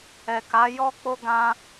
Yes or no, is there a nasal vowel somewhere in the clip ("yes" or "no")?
yes